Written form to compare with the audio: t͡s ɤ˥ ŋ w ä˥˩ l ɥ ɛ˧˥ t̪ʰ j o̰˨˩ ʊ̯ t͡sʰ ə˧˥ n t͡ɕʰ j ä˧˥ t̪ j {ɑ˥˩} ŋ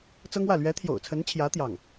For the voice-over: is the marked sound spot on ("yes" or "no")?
yes